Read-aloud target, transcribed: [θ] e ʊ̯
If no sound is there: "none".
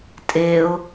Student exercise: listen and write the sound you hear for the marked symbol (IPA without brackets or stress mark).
tʼ